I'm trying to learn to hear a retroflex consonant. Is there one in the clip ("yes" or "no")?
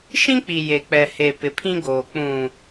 no